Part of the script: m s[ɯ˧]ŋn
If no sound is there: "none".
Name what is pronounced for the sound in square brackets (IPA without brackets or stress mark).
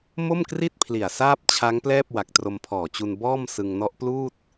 ɯ˧